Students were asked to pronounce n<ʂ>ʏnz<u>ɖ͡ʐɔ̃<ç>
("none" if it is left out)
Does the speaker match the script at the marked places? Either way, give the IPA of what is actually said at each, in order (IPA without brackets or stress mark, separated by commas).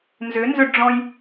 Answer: z, ʏ, j